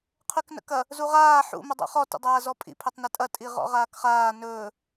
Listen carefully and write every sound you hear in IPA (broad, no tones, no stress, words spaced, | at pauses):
qʰyknə̰kɐ | zuʁaː ħṵ mədˤṵχɔ tə̰dˤaːzɔpʼḭ pʰɵtˤnɐtʼɐ tʼiʁɔ̰ʁaːkχaː nɵː